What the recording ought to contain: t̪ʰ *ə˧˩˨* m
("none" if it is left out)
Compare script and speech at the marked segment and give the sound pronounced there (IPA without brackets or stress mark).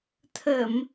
ə˧˩˨